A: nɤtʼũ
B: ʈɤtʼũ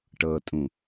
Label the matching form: B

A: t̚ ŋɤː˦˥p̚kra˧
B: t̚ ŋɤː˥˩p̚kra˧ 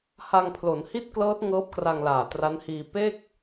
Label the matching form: A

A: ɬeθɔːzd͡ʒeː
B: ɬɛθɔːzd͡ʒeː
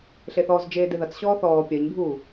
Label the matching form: A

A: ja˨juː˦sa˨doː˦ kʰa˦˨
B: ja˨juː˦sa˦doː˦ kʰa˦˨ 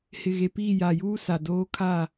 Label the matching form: A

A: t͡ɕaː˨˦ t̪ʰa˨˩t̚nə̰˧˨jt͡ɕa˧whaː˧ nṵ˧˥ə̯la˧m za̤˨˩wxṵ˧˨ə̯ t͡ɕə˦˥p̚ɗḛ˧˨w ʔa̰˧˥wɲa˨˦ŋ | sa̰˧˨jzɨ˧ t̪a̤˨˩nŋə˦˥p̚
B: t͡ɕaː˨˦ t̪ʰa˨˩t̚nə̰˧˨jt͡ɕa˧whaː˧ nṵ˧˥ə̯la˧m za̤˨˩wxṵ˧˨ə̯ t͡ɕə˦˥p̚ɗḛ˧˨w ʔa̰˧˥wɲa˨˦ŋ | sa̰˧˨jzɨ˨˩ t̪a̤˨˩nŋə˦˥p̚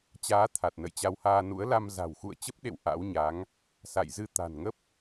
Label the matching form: A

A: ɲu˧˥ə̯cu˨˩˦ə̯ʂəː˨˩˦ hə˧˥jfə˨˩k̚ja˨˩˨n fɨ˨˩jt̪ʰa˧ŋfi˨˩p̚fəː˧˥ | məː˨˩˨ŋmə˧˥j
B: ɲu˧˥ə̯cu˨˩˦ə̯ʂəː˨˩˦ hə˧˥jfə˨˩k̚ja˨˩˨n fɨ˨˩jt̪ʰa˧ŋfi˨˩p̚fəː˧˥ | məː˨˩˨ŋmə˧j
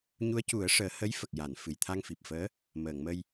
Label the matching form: B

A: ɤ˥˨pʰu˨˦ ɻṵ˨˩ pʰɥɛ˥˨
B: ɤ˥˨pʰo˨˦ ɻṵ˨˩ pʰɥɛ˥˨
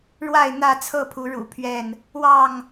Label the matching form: A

